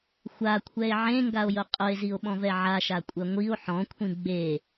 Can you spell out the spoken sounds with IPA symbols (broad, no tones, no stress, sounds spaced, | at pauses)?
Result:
xʷ a kʷʰ ɛ e̯ ʕ ẽ ŋ ɡ a o̯ j ʊ qʼ ʊ e̯ z i o̯ ɓ ɔ̃ v ɛ ʕ a ʃ a kʷʼ ɛ ŋʷ i o̯ ħ ɔ̃ kʷʰ ĩ ɡ͡b e